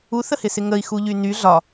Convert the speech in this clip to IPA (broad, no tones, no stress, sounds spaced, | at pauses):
u θ ə h ɪ s ɪ ŋ ə i̯ x u ʎ y n y ɮ ɒ